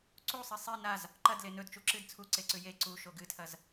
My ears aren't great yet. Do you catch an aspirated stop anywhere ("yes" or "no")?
yes